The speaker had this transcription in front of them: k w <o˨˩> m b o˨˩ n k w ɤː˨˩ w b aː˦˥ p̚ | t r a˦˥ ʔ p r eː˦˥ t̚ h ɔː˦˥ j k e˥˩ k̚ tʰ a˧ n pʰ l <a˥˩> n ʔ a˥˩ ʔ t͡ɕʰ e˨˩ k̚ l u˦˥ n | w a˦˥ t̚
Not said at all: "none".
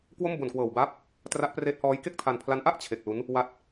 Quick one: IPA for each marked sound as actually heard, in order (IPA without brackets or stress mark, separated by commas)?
o˥˩, a˦˥